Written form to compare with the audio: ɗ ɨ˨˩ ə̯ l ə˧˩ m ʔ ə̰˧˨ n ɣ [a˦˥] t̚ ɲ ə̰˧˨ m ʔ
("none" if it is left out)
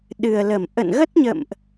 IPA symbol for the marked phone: ə˦˥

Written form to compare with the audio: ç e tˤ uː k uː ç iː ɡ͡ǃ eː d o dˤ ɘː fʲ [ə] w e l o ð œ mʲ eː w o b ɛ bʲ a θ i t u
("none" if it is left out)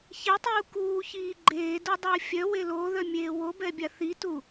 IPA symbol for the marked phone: œ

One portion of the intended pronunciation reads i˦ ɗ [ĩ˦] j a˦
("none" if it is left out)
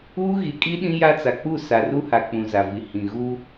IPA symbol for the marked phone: ĩ˦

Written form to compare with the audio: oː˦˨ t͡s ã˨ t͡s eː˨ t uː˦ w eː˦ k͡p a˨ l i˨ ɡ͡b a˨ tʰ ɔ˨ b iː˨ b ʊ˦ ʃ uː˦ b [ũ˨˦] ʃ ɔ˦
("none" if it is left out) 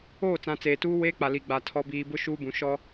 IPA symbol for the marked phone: ũ˨˦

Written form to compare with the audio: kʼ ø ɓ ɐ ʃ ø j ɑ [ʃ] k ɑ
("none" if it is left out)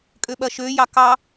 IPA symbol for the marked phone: none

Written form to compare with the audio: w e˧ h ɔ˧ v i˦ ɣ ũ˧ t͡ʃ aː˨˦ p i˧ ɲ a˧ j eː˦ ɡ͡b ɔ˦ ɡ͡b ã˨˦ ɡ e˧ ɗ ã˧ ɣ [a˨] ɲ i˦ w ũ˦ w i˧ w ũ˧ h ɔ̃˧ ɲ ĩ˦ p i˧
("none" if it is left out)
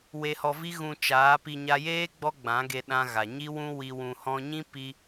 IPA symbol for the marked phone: a˨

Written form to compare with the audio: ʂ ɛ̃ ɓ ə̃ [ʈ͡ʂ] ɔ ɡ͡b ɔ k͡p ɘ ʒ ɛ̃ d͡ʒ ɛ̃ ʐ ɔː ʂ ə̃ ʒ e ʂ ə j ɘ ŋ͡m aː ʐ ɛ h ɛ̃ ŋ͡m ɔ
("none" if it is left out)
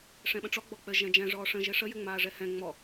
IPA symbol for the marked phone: ʈ͡ʂ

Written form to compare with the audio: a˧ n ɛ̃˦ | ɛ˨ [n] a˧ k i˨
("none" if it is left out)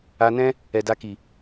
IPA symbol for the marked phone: d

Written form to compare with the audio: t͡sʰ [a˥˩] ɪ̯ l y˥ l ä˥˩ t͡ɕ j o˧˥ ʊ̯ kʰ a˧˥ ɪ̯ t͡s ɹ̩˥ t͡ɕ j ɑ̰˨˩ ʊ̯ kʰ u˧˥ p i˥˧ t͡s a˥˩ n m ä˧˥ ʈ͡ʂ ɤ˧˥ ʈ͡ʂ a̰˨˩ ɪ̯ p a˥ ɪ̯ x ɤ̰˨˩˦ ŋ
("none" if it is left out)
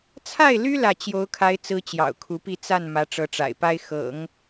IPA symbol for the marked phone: a˥˩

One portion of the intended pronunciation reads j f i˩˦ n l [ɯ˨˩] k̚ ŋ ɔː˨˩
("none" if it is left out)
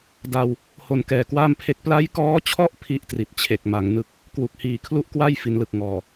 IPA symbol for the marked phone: ɯ˨˩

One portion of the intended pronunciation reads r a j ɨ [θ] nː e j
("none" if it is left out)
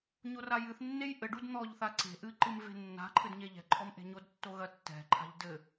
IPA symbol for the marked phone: θ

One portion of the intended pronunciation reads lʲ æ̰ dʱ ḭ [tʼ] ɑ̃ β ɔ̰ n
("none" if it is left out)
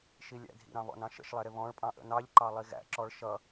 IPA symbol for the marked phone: ɾ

